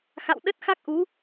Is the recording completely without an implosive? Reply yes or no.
no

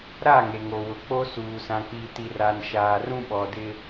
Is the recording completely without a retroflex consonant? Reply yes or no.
yes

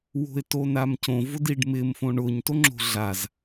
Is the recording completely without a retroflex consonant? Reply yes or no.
no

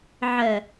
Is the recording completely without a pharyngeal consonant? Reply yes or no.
no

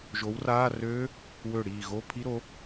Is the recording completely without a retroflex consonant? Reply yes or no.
no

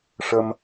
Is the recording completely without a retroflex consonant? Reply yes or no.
no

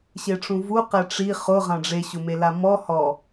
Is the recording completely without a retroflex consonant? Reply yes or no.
no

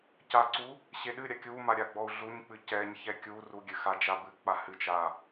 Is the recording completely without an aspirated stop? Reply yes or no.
yes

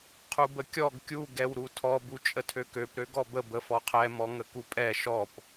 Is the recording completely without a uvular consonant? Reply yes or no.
no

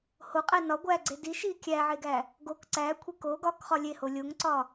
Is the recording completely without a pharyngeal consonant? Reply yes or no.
no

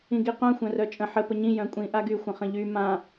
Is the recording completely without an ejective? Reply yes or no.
no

